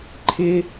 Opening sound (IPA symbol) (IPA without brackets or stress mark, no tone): ǃʰ